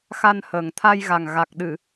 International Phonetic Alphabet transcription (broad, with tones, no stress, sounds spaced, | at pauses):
x a˧ n h əː˨˩ ŋ t̪ʰ a˧ j ɣ a˨˩ ŋ ɣ a˨˩ k̚ ɗ ɨ˨˩˨